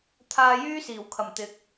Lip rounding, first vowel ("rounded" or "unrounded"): unrounded